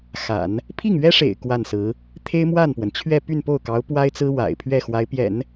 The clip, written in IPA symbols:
x a̰˨˩˦ n | pʰ i˥˩ ŋ ɥ ɛ˥ ʂ ḛ˨˩ ɪ̯ k w a˥˩ n s ɹ̩˧˥ | t̪ʰ e˥ ɪ̯ m w a˥˩ n p w ə˩ n t͡ɕʰ ɥ ɛ˥˧ p y˥˧ n p o˥˩ ʊ̯ k ɑ˧˥ ʊ̯ p w a˥ ɪ̯ t͡s ɹ̩˥ w a̰˨˩ ɪ̯ pʰ ɥ ɛ˥˩ x w a˧˥ ɪ̯ p j ɛ̰˨˩˦ n

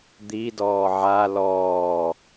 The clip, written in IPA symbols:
d̪ i d ɔː ʕ a l ɔː

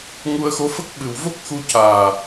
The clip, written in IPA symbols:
ŋ u˧ ə̯ x o˧˥ f ə˦˥ k̚ ɓ ɨ˨˩ w v o˦˥ k̚ x u˧ c aː˨˩

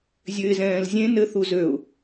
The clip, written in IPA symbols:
zʲ ø ɪ̯ z ɛ̃ː l zʲ ẽ n ɘ θ u z ø ʊ̯

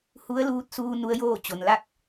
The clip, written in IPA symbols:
h u˧˥ ə̯ l uː˧ t̚ s uː˧ n u˧˥ ə̯ j oː˥˨ t͡ɕ o˩ n l a˥˨ k̚

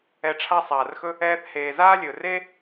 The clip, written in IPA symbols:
ɛ˧ ʈ͡ʂʰ a˥ sˤ aː˩ r x ɵ˥ | ɛː˧ θ h eː˩ z aː˥ lʲ ɵ˩ r e˥

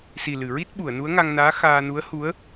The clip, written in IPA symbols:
s i˨˩ l ɨ˨˩˨ ɹ i˦˥ t̚ ɓ u˨˩˨ ə̯ n u˧˥ ə̯ ŋ a˧ ŋ n aː˧˥ x aː˧ n u˧˥ ə̯ h u˧˥ ə̯

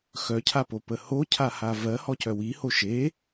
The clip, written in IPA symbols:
x œ cʰ a p o p ə h o cʰ a h a v ɜ h ɔ c œ w i h o ʃ e

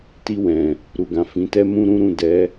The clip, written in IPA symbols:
t i˧ w ɛ̃˨ | ɾ u˨ ɡ ã˨ f ĩ˨˦ t ɛ˦ m ũ˦ ɾ ũ˦ ɾ ũ˦˨ d ɛ˨˦

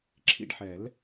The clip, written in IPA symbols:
ǁʰ ḭ˦ ɖ ħ ɛ˨˩˦ l

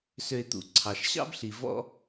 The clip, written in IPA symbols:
s ø˧ ɪ̯ t̪ ṵ˩ ǀʰ ɑ˩ ʃ ɕ ɑ̰˥ b ɬ i˩ v ɔ̰˧

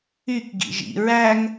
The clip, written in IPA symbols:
y k ɡ ḭ ʒ ḭ ɹ æ ŋ

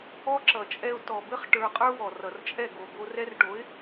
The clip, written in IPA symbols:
ɔ˦ ǁ ʌ˨ t͡ʃʼ ɛ˧ ʊ̯ t ɔ˨ b ɘ˦ χ ʈ ə˞˧ qʼ ə˞˦ w ɔ˨ r ʌ˨ r t͡ʃʼ ɛ˦˨ ɡ o˨ ɡ o˧ r ɛ˦ r ʈ o˨˦ ɪ̯

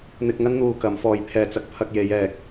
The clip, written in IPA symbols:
n̪ ɪ˧ k̚ ŋ ɐ˥ n n̪ uː˧ k ɐ˨˥ m f ɔː˧ j pʰ ɛː˧ t͡s ɐ˨ k̚ pʰ ɐ˧ k̚ j e˨˧ j ɛː˨ k̚

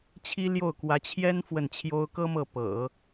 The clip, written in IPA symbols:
t͡ɕʰ i˥ l j o˥˩ ʊ̯ k w ä˧˥ t͡ɕʰ j ɛ˥ n f w ə˥˩ n t͡ɕʰ j o˥ ʊ̯ k ɤ˥ m ɤ˥˩ p ɤ̰˨˩˦

